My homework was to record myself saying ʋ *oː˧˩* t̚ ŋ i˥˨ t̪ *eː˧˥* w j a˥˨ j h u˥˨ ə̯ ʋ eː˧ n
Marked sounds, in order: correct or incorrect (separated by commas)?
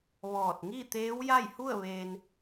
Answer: incorrect, correct